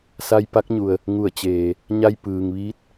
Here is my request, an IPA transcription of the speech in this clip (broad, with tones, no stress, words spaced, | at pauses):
sa˧jpa˧˥k̚ɲu˩ə̯ | ŋu˧˩ə̯t͡ɕeː˩ | ɲa˧jpɯː˩ŋ ʋi˧˥t̚